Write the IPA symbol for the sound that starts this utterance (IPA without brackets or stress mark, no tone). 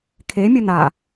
kʰ